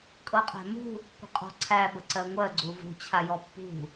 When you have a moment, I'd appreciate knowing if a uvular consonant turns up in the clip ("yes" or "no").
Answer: yes